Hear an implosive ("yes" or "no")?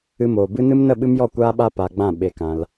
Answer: yes